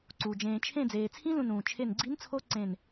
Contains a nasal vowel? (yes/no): yes